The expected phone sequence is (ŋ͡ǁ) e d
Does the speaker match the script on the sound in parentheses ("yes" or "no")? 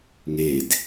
no